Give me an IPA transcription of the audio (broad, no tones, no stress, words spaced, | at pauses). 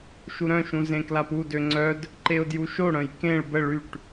ʃuɾœ̃ʃũ zẽklapudø ŋ͡ǀœd | ǃeʊ̯djuʃoɽœ̃j kẽɭ bə ɭyʈ